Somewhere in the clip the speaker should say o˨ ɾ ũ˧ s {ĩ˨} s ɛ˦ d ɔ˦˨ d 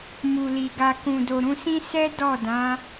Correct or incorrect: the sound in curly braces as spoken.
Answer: incorrect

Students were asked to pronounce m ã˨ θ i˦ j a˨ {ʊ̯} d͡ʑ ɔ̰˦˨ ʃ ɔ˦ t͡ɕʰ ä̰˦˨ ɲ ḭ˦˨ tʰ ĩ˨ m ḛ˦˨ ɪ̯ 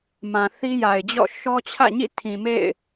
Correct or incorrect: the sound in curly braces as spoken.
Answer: incorrect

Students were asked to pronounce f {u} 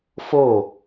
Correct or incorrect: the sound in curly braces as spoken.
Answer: incorrect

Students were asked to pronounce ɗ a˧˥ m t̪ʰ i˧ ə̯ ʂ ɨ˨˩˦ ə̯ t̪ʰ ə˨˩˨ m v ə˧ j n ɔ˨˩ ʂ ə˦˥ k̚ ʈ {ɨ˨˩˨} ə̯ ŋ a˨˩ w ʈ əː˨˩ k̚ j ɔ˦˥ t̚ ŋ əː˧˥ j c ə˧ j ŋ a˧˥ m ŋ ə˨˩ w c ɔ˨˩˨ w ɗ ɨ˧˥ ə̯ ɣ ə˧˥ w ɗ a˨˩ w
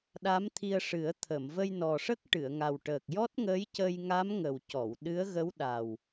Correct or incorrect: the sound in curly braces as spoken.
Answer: correct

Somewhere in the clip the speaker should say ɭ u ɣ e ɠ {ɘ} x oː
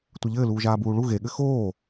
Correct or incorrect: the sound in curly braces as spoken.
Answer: correct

